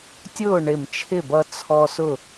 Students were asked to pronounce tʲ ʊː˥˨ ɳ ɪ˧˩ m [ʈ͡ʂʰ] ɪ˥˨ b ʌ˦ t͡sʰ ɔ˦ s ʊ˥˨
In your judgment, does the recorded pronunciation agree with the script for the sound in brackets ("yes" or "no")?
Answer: no